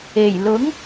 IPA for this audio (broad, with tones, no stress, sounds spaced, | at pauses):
e˨˩ j l ʊ˨˥ ŋ